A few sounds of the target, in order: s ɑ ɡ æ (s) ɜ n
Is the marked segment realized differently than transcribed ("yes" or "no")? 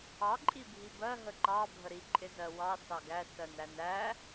no